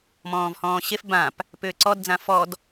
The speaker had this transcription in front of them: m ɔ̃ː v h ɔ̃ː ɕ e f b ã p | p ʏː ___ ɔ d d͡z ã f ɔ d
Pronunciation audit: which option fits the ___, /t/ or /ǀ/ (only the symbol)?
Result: ǀ